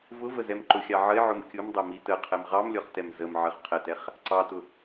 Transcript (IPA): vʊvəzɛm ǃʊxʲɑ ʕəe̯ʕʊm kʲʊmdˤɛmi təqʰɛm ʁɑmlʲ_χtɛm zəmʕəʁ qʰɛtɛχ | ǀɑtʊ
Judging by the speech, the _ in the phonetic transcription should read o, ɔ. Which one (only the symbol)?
ɔ